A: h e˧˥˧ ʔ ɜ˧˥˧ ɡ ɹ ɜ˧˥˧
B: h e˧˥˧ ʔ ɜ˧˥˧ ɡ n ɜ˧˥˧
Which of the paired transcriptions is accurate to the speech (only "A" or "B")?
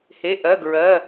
A